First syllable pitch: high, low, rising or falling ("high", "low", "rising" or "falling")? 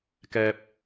high